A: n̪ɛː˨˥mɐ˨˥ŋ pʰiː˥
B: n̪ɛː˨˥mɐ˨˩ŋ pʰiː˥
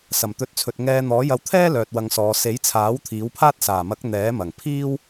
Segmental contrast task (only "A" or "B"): B